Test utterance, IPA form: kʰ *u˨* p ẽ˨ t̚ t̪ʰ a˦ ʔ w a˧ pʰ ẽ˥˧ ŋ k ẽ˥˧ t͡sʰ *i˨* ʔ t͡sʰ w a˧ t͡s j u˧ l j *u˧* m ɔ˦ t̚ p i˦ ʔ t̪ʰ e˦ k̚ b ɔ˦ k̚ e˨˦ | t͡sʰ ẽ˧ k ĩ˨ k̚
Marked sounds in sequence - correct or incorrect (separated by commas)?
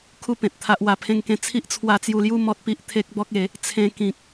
incorrect, incorrect, incorrect